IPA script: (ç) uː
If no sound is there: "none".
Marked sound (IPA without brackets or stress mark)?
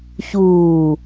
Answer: ç